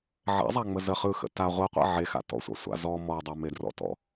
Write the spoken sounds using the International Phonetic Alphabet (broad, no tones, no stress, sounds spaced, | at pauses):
ʕ ɛ̰ zˤ a ŋ͡m ə z ə χ ɯ x ə̰ t a ʁʷ ɯ qʷ ḛ ʕ e x a̰ t ɔ̰ sʷ a̰ sʷ a̰ z ɔ m ɔ dˤ e m e d r ɔ̰ t ɔ̰